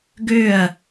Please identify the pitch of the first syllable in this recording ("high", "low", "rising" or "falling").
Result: falling